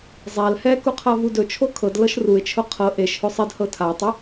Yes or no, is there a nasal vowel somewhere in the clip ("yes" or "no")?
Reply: no